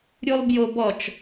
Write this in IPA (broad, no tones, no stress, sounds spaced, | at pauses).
ɾʲ u lˠ b j o b ɔ t͡ʃ